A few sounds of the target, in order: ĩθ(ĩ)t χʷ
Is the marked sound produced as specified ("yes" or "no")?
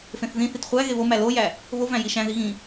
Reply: no